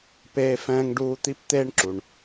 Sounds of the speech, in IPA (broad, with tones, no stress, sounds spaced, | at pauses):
p eː˧ f ɛ̃ː˧ ŋ ɖ uː˧ t̪ i˧ p t̪ eː˧ ɳ ǁ u˩ ɳ